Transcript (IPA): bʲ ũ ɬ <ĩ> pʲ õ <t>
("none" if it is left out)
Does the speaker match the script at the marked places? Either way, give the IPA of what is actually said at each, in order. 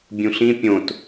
ĩ, t

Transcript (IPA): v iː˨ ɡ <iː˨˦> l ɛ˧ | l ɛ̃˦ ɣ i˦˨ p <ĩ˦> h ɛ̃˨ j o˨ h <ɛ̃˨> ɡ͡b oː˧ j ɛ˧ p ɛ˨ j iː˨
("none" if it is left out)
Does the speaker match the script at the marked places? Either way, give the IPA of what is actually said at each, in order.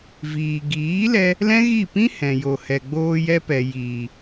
iː˨˦, ĩ˦, ɛ˨

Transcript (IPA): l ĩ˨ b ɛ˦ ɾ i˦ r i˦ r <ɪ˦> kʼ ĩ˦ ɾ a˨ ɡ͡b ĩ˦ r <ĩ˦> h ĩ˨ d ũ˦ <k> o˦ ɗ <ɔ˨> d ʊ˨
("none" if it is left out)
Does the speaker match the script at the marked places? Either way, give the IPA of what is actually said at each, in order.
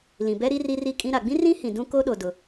i˦, ĩ˦, k, o˨

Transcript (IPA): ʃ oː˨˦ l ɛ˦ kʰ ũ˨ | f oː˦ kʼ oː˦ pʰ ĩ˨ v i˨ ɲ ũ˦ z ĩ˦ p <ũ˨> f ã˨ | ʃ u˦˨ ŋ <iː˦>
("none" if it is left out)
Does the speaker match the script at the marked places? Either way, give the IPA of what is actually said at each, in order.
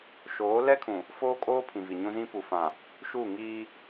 u˨, iː˦

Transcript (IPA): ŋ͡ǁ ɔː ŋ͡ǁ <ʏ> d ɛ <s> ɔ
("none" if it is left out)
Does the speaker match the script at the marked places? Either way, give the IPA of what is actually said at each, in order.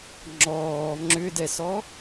ʏ, s

